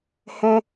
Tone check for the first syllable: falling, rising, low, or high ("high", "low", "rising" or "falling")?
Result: high